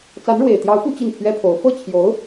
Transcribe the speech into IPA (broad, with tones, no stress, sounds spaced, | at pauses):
t͡s a˧˥ n ɻ w e˨˩ ɪ̯ t̪ j ɑ˧˥ ʊ̯ p u˥ t͡ɕ i˥˩ n pʰ ɥ ɛ˥ pʰ o˧˥ ʊ̯ f ɤ˥˩ t͡ɕʰ j o˧˥ ʊ̯